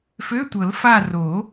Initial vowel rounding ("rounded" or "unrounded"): rounded